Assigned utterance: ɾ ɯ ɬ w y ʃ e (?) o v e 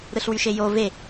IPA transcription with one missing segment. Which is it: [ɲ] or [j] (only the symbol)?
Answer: j